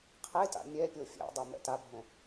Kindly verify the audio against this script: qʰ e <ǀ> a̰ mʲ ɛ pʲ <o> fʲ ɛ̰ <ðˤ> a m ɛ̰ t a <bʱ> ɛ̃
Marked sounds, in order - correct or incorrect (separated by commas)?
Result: incorrect, correct, incorrect, correct